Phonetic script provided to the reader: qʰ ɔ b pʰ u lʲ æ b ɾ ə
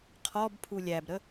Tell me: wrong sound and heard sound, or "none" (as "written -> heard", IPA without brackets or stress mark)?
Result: none